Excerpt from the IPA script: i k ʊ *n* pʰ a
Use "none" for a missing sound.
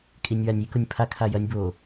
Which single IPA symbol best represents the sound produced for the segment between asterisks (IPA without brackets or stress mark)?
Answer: nʲ